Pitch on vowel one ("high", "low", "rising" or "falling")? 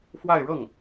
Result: falling